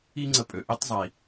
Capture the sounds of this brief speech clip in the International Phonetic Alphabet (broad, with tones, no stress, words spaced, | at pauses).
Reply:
i˥ŋ͡ǀə˧pʼø˩ ʔi˥tˤzˤi˩